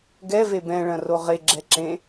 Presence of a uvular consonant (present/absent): present